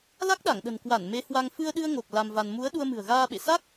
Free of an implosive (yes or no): no